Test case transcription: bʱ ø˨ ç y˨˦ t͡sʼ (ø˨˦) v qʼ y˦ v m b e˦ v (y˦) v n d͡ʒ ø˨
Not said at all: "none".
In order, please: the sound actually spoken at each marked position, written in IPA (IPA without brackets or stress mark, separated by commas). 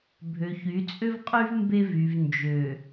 ø˦, y˨